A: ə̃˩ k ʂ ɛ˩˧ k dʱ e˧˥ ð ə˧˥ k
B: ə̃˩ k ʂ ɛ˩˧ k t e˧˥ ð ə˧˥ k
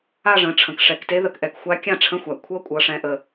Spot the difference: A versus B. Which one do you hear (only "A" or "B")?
B